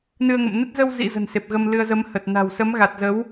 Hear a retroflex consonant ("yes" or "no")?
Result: no